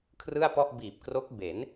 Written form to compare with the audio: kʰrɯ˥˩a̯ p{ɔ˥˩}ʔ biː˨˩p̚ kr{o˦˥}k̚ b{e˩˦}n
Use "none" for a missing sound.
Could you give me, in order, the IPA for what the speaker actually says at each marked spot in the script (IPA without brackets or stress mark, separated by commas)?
ɔ˥˩, o˦˥, e˩˦